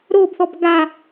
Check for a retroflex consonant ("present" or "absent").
absent